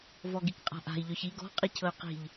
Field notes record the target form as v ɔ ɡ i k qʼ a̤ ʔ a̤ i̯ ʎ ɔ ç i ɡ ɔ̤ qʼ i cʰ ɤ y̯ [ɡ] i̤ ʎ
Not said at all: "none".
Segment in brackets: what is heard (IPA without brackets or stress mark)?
q